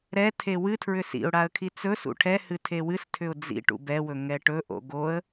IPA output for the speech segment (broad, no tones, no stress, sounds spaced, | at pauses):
ɾ ɛ tʰ e w ɨ tʰ ɹ ʏ s ḭ ʊ̯ ɽ a ə̯ kʰ i t͡s ɵ s ṵ ʈʰ ɛ h ɨ tʰ e w ɨ s tʰ ʏ ʊ̯ d͡z ḭ ʈ ṵ b ɛ w ɵ ŋ ɛ ʈ ɵ ʔ o̰ ɡ o ə̯